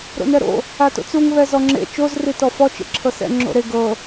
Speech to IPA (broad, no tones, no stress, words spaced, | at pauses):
ɾo̰nɛɾo̰ | ato̰t͡suŋ βɛzɔŋ͡ǁḛ t͡ʃoz ritɔfɔ t͡ʃḛǁʰɤsɛ̰ ŋ͡ǁo̰ɾe ɡɤ